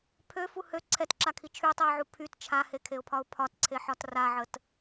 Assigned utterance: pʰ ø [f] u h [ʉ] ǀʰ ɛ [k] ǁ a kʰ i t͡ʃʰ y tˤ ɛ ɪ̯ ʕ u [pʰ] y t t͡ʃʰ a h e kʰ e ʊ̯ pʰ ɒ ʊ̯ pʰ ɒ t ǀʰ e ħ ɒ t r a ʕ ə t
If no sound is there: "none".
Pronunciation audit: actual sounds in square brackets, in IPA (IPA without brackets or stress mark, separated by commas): f, ø, t, pʰ